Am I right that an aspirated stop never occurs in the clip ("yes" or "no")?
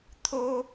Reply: no